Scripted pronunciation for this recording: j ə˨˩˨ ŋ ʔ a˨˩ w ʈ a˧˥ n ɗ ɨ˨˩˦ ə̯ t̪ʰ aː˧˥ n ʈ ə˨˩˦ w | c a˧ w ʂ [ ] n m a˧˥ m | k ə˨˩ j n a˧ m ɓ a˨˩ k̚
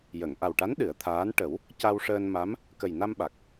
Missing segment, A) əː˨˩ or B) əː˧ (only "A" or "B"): B